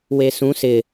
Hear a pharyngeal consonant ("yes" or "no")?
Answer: no